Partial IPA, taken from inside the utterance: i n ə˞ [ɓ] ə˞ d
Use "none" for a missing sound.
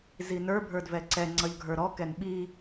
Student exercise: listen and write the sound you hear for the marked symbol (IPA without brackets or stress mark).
bʱ